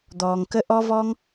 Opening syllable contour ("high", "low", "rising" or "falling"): low